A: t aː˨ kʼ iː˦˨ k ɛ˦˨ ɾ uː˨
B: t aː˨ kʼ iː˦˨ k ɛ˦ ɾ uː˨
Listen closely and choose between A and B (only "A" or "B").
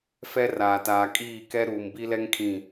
B